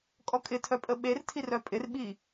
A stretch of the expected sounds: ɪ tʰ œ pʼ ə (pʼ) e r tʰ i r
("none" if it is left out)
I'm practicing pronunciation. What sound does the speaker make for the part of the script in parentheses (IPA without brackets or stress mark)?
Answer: ɓ